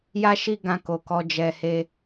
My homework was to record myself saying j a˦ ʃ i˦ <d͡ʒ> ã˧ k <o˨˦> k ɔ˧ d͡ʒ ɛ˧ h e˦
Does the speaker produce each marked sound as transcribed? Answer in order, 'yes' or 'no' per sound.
no, no

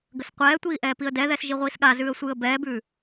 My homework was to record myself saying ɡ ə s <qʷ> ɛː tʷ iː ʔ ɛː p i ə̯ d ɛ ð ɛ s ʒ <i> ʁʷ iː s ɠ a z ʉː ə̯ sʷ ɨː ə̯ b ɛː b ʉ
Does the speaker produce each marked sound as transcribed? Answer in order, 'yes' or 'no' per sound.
yes, yes

